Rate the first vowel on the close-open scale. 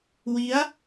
close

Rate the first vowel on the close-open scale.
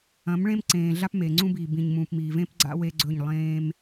open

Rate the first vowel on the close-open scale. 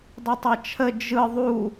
close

